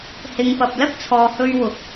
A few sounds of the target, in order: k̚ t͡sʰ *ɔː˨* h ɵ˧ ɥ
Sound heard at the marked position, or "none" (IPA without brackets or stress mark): ɔː˨